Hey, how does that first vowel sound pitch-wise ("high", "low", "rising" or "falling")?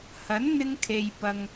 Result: rising